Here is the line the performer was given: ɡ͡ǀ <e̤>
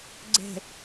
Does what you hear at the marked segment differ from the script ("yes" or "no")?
no